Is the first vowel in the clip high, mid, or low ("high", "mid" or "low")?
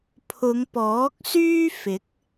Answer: high